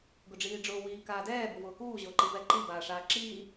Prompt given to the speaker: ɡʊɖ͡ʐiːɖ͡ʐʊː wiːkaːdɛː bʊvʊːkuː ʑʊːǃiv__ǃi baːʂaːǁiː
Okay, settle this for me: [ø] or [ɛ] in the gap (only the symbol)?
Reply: ɛ